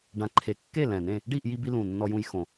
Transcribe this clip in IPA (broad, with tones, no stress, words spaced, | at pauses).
ɖã˨˩ǃʰe˨˩kːe˥˨ lɛ̃˨˩nẽ˥˨ | ɖi˥˨ʔji˧bi˧ lũ˨˩nːɔ˧jũ˧j xõ˨˩